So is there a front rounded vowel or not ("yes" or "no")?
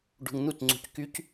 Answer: yes